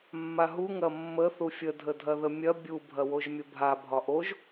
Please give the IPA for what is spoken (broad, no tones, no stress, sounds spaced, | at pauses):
mː a ɦ u ŋ ɐ mː ə θ u fʲ ə dʱ ə dʱ ɐ ð ə mʲ ɐ bʲ u bʱ ɐ w o ʒ mʲ ə bʱ a bʱ ɒ ʔ o ʒ